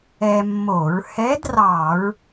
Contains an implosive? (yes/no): no